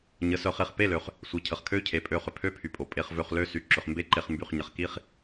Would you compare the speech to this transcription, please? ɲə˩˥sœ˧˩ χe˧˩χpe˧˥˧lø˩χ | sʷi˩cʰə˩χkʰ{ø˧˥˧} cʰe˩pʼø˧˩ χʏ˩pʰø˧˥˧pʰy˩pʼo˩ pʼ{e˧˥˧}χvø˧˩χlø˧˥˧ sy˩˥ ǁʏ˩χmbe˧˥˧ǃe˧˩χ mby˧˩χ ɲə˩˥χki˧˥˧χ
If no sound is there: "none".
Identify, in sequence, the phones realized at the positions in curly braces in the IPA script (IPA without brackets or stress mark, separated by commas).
ø˧˥˧, e˧˩